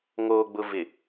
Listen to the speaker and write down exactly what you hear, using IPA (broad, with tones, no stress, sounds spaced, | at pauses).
ŋ oː˨ ɡ͡b ʊ˨ v ɪ˨